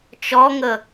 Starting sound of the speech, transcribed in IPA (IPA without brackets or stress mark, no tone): t͡ʃ